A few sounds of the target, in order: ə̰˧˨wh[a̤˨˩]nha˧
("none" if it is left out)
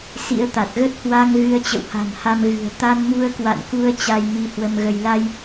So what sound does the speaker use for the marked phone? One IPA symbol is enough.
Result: a̤˨˩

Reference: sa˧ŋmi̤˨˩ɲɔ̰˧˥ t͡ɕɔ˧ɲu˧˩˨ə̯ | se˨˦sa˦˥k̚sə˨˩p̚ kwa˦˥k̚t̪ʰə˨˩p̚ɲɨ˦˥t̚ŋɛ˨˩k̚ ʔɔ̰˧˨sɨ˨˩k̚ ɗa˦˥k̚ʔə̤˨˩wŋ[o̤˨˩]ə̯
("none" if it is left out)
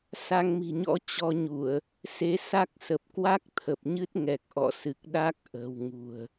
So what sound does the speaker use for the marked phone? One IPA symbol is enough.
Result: ṳ˨˩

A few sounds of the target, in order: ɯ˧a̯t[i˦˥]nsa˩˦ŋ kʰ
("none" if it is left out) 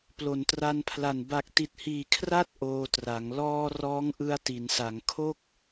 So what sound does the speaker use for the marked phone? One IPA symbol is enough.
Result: i˩˦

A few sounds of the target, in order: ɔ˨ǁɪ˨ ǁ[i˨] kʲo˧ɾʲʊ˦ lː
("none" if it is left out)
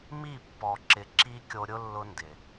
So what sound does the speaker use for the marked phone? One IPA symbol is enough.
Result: i˦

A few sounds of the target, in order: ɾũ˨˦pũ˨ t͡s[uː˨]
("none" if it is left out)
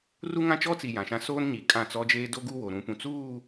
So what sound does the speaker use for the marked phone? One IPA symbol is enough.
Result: uː˦˨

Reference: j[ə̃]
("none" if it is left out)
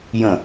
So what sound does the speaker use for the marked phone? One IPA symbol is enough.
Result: ə̃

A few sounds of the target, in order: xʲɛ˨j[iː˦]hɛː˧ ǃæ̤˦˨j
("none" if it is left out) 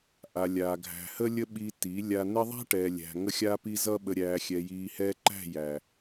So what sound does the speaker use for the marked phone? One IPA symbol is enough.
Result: iː˨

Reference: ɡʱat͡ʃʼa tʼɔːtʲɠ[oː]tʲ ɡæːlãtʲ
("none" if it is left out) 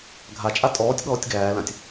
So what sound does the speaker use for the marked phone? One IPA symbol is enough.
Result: ɔː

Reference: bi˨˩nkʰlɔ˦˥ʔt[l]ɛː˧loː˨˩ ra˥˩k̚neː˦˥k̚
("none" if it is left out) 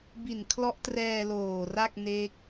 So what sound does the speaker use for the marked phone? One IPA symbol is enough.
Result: r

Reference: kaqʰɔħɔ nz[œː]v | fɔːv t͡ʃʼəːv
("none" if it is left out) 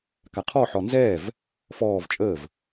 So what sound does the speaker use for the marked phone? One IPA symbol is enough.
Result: ɛː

